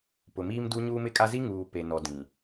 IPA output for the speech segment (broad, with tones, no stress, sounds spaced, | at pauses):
p ʊ˨ m iː˦ m d u˦ ɲ uː˦ m ɪ˦ kʼ a˦ z i˦ ŋ uː˨ p e˨ n ɔ˨ d ĩ˨